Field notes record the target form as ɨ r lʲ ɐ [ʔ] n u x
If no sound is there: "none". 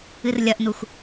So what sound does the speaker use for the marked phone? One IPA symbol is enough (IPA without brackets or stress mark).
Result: ʔ